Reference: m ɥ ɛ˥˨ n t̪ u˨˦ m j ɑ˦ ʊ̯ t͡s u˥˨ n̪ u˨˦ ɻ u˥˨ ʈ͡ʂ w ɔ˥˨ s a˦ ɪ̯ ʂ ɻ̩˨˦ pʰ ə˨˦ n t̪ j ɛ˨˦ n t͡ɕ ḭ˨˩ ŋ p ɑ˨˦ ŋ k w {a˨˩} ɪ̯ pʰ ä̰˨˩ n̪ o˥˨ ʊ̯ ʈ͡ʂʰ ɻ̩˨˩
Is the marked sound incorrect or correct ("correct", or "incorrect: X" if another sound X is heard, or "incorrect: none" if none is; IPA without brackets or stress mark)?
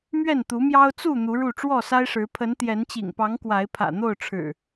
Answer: incorrect: a˨˦